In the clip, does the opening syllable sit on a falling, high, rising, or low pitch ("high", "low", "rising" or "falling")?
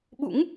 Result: rising